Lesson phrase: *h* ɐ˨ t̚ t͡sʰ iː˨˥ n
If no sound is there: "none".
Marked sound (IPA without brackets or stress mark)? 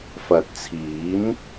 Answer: f